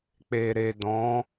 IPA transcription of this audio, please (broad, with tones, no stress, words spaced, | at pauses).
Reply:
k͡pe˨ɾe˨ dɔ̃˨˦